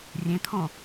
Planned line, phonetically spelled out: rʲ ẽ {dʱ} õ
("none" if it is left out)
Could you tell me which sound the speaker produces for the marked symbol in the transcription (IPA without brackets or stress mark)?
t̪ʰ